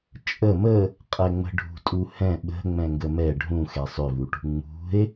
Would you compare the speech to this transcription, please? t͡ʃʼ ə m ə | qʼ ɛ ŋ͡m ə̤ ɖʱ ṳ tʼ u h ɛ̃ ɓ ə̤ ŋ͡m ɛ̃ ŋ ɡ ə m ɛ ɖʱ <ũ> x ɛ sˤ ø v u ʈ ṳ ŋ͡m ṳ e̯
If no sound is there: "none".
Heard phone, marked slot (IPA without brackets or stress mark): ũ